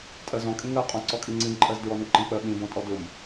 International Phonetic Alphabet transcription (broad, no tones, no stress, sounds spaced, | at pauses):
tʼ ɜ z ɔ̃ kʼ ĩ ŋ ɜ qʼ ɔ̃ ǀ ɔ kʼ i ŋ͡ǀ ĩ ǃʼ ɜ z d ɹ ɔ n ɨ ǃ ə̃ k͡p ɜ ɓ ĩ b ɔ̃ tʼ ɔ d ʊ m